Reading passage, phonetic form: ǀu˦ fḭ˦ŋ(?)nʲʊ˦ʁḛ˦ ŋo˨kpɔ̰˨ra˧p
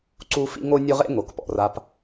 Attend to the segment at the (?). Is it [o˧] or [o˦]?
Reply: o˦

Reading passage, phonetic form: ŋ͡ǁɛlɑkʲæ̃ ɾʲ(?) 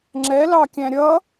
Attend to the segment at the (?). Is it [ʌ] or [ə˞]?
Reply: ʌ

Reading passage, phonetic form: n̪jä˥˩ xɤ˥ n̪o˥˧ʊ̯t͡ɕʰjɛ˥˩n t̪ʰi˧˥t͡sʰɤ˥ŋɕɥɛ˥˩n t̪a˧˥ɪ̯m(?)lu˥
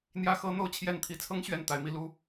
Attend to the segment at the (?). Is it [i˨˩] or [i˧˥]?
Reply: i˧˥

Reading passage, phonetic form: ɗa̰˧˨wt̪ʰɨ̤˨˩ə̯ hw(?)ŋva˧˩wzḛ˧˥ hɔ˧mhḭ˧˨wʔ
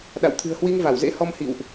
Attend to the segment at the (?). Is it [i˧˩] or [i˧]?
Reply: i˧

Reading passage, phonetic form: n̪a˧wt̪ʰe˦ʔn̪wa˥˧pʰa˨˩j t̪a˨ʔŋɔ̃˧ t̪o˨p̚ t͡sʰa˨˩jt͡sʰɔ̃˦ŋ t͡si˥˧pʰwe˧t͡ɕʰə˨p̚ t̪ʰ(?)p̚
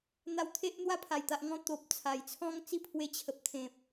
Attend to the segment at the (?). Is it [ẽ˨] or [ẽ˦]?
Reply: ẽ˨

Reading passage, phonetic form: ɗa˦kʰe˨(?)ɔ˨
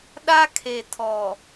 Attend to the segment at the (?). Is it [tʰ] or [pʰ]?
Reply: tʰ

